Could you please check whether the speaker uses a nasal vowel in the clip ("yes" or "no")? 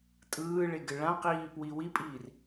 yes